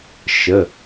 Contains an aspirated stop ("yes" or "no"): no